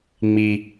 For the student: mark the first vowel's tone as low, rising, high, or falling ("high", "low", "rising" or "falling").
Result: low